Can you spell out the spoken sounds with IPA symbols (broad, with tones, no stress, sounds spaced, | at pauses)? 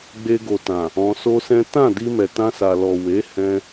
ɡ͡b e˧ ɡ o˨ t ã˨ | ɔ̃˧ s o˦ s ɛ̃˦ t ã˦˨ d i˧ m ɛ˨ t ã˧ s a˨ l ɔ˨ w e˨˦ h ɛ̃˧